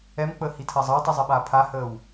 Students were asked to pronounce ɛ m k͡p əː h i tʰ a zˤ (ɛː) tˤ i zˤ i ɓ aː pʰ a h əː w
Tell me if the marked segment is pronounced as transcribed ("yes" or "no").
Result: no